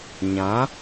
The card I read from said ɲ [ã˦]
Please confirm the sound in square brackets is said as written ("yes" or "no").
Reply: no